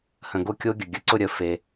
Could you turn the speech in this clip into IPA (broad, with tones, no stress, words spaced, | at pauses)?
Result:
hə̃˨ɡo˦kʲo˦ɡʲə˨ ɡʲə˨ǀʊ˦˨ɾʲə˨˦ fe˦